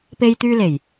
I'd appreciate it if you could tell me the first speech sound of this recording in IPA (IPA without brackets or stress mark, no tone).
p